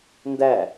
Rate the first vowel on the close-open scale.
open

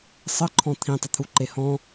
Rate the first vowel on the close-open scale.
mid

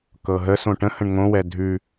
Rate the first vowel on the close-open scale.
mid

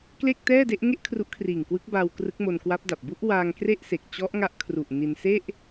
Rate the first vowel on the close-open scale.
mid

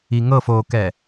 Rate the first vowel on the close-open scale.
close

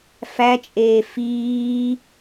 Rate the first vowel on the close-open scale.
open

